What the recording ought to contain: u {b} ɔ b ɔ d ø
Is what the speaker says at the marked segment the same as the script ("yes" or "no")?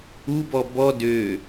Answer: yes